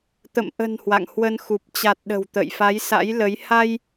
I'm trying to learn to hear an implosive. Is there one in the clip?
yes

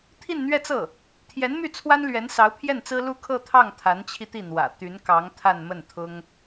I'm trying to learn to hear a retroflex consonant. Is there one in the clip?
no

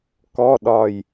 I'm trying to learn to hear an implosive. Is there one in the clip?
yes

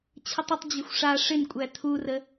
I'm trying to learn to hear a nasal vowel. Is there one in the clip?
no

